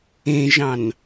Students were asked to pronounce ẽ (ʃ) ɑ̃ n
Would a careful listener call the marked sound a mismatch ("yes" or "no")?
yes